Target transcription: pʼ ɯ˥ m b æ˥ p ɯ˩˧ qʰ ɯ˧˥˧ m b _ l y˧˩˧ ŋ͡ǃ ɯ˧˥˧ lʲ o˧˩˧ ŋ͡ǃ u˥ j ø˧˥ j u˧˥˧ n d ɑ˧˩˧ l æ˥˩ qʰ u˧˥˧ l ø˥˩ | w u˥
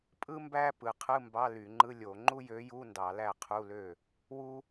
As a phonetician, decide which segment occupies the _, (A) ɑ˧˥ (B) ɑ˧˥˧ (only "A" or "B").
B